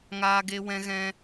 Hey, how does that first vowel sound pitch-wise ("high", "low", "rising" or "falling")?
high